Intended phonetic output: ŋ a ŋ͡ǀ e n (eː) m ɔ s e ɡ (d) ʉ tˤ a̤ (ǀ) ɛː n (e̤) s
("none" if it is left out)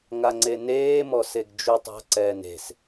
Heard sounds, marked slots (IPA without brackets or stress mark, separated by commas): eː, d͡ʒ, ǀ, e̤